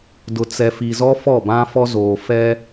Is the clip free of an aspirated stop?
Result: yes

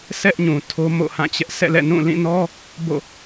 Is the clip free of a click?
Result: yes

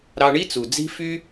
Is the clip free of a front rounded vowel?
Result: no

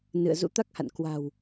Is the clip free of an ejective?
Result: yes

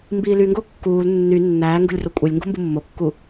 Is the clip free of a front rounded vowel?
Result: no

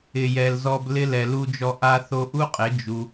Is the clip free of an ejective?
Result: no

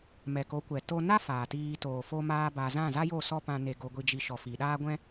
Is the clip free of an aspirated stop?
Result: yes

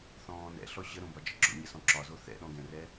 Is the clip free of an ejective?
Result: yes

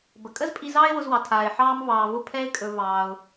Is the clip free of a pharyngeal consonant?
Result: no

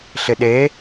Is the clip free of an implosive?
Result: no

